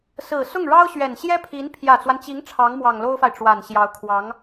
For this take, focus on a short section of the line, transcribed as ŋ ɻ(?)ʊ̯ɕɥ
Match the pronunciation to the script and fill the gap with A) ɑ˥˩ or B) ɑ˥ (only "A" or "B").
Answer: B